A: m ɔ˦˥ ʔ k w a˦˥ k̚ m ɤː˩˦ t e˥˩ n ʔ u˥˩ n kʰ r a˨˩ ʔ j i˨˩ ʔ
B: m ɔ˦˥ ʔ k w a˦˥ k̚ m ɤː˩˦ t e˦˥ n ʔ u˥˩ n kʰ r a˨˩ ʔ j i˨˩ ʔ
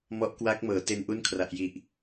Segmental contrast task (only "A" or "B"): B